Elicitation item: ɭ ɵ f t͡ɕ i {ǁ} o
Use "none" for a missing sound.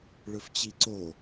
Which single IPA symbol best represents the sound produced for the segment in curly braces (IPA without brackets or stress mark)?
ǀ